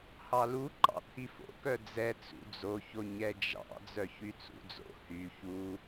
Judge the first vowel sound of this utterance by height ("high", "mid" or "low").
low